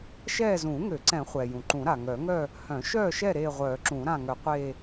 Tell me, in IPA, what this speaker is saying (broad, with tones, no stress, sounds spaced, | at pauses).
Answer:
ʃ ɛː˦˨ z ũː˨˩˦ ŋ ø˨˩˦ ǀ ɛ̃˨˩˦ χʷ ɛ˩ j ũ˩ ǃ ũ˨˩˦ ɾ a˩ ŋ œ˨˩˦ ŋ œ˦˨ | h œ̃˨˩˦ ʃ œː˦˨ ʃ ɛ˦˨ ɾ eː˦˨ ʁʷ œː˨˩˦ ǁ ũː˨˩˦ ɾ ã˦˨ ŋ œ˨˩˦ qʷ eː˦˨